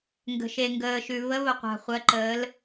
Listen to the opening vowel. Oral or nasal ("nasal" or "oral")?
oral